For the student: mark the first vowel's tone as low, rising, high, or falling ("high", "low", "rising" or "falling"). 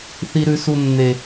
high